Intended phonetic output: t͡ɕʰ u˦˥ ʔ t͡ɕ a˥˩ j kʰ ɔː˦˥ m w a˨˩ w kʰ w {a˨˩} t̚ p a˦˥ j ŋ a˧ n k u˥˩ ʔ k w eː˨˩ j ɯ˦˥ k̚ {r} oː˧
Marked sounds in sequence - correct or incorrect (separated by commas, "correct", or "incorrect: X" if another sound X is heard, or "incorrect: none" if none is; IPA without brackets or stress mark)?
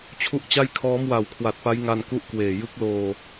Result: correct, incorrect: l